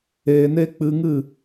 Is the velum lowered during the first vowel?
no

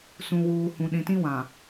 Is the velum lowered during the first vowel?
yes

